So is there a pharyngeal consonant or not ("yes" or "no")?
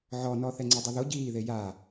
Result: yes